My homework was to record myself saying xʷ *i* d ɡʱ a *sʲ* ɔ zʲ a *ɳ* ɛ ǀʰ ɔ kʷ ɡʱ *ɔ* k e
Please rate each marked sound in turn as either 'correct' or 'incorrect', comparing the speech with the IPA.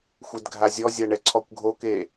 incorrect, incorrect, correct, incorrect

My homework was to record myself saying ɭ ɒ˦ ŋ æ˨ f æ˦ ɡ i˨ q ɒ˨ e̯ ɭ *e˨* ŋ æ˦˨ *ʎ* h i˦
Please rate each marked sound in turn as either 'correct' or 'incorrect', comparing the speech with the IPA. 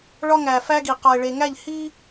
correct, correct

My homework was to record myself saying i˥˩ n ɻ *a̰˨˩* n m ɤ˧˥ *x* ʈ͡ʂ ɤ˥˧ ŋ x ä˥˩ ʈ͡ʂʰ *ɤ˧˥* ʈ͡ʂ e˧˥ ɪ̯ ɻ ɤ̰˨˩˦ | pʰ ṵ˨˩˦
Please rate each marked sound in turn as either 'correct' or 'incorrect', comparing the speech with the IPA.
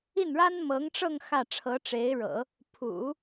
incorrect, incorrect, correct

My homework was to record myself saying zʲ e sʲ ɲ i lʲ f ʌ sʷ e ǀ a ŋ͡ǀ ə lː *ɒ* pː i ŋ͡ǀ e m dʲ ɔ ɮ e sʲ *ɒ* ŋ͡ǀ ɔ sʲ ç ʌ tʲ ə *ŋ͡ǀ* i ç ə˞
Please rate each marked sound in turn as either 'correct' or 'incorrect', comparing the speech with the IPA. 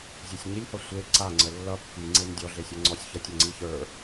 incorrect, incorrect, correct

